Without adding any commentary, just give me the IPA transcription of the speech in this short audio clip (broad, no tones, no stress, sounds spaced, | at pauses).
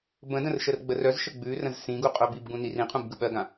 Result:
b ə̃ d ə̃ r ʃ ə r ɡ͡b ə r œ z ʃ ə ɡ͡b ʉ r ə̃ z s ĩ ɡ u qʼ œ b i b ɡ ũ n i r ĩ qʰ ũ b ɡ ɯ ɓ ɜ ɡ ã